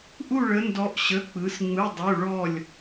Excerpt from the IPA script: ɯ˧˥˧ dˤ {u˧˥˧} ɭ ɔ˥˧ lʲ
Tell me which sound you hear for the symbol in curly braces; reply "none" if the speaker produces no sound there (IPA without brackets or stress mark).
u˧˥˧